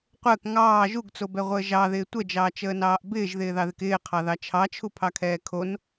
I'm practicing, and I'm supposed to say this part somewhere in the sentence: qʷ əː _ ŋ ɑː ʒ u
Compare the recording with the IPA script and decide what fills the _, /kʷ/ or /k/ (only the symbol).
k